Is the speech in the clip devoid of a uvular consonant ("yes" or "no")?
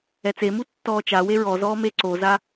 yes